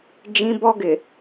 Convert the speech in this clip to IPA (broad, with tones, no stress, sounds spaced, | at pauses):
d͡ʒ ĩ˦ b ɔ˦ ɡ ɪ˨